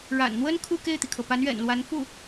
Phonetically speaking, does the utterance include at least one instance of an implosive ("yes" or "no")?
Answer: no